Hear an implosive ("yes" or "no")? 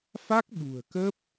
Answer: yes